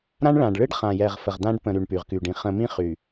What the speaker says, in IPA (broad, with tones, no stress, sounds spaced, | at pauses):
ɾ ã˦ ɳ ɭ ã˨ ɖ ɭ ɨ˦ ɖ χ ã˨ j ɛ˨ ʁ f ə˨ ʁ d̪ ã˦ ɖ p ə̃˨ ɾ y˨ ɳ p y˨ ʁ k y˨ ɖ ĩ˨ χ ə̃˨ m ĩ˦ χ y˨